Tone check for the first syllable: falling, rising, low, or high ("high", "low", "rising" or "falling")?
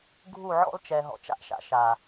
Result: falling